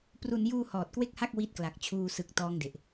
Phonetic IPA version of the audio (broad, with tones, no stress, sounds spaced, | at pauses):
p r u˧ n j uː˧ h ɔː˨˩ t̚ k w e˥˩ k̚ h a˥˩ k̚ w i˦˥ t̚ k l a˨˩ k̚ t͡ɕʰ uː˧ s ɯ˨˩ k̚ t ɔː˦˥ ŋ d e˨˩ ʔ